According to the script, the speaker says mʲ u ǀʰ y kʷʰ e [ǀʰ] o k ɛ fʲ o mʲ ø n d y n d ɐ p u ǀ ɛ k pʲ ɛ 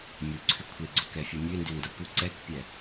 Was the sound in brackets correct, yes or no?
no